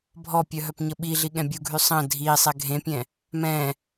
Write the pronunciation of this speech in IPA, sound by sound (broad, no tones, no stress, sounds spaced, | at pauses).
bʱ ɔ pʲ œ ɦ œ p ɲ ə ɓ i ɮ i ɠ ɛ̃ bʲ u ɡʱ y sˤ ə̃ dʱ i sˤ ɛ ɡʱ ẽ pʲ ɛ̃ | m ɛ̃